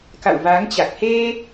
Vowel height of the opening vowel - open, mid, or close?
open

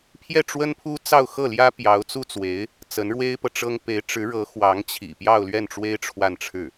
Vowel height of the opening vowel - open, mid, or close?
mid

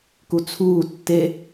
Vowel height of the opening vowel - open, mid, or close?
close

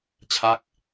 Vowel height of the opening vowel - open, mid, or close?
open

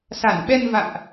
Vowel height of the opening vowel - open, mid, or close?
open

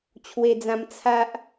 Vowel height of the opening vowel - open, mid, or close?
mid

